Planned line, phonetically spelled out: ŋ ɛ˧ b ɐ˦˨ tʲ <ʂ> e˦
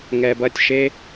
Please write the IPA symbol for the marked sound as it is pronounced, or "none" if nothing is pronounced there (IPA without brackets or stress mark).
ʃ